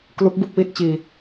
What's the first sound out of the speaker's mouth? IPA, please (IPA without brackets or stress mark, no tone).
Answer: k